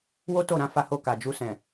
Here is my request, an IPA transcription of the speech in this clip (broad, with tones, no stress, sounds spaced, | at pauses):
w o˦ t o˦˨ ɾ ã˨˦ f a˧ h o˧ k a˨ d͡ʒ u˧ s ɛ̃˨